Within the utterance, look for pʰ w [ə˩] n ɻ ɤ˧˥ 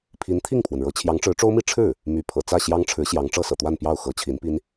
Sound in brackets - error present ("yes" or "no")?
no